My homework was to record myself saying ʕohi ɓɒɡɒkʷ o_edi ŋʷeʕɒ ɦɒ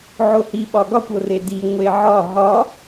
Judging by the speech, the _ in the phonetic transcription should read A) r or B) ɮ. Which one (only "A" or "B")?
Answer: A